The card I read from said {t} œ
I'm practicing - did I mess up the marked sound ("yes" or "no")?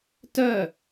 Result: no